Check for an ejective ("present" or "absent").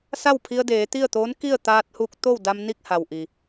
absent